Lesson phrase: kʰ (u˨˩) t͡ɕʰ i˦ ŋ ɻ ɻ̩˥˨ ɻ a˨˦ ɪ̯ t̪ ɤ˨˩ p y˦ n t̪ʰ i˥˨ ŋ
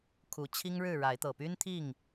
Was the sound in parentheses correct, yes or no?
yes